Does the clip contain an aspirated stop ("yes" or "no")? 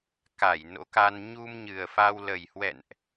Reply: no